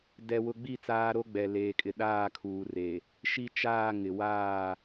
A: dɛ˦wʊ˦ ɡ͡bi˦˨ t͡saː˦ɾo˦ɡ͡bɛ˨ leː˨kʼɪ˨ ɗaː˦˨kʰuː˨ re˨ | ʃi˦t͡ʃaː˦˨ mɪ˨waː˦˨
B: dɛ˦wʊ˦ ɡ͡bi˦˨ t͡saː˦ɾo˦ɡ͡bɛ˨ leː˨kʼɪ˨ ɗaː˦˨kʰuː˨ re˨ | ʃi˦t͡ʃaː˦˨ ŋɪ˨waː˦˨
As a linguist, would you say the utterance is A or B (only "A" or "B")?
B